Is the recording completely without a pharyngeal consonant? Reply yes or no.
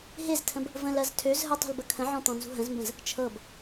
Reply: no